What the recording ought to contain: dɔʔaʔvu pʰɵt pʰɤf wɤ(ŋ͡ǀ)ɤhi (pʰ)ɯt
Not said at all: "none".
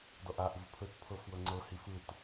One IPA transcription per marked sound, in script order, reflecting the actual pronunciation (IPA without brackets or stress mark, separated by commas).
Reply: ŋ͡ǀ, f